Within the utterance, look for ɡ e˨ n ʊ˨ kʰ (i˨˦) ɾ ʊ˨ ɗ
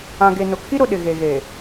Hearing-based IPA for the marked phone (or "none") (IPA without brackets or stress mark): i˦